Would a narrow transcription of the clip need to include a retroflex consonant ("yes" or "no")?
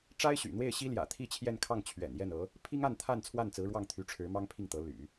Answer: yes